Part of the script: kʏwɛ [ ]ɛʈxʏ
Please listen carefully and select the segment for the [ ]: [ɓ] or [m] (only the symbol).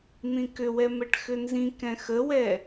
m